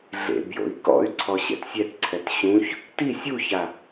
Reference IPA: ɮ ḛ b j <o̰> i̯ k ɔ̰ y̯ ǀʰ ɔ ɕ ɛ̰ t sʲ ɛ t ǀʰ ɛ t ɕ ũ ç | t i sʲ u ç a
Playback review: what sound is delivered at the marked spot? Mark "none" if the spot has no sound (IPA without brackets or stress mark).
o̰